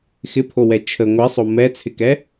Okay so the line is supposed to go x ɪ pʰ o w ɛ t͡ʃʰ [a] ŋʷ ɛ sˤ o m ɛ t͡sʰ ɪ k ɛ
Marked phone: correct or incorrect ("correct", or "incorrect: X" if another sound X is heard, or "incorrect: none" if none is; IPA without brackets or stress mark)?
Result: incorrect: ə